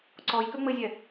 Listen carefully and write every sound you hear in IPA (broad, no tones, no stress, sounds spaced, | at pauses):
ǀ ɔ j k ø ŋ͡m ɘ zʲ ɛ